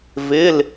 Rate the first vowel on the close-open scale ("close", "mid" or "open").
close